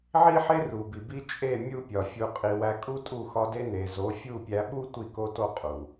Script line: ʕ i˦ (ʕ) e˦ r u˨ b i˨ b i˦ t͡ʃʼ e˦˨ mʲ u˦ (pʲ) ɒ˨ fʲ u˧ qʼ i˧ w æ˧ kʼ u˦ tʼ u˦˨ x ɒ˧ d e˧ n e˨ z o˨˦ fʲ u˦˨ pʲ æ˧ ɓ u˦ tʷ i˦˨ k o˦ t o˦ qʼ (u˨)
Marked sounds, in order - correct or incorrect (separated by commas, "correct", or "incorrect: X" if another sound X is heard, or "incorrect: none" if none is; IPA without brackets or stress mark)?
incorrect: ħ, correct, correct